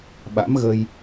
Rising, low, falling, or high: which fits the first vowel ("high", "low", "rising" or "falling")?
rising